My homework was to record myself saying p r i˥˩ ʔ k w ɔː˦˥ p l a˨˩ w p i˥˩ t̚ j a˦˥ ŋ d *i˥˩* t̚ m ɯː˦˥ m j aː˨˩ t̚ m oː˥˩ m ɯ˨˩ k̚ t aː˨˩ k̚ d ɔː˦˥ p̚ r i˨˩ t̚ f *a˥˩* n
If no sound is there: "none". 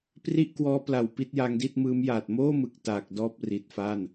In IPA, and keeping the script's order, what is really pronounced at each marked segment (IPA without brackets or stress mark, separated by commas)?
i˥˩, a˥˩